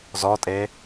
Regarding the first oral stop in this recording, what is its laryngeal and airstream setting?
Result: ejective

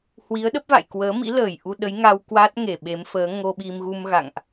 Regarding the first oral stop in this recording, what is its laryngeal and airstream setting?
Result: implosive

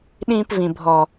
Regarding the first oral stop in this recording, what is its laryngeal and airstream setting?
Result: implosive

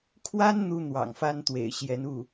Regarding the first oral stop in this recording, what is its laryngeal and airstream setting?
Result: aspirated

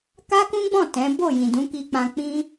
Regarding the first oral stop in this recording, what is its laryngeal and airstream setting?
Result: plain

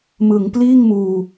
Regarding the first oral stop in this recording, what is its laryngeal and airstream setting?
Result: plain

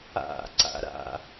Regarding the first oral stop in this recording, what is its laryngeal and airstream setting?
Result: click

